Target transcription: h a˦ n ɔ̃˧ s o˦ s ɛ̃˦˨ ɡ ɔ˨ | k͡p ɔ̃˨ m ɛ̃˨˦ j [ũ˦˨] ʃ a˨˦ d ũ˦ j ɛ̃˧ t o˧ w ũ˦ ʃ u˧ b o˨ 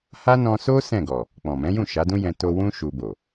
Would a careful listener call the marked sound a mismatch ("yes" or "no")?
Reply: no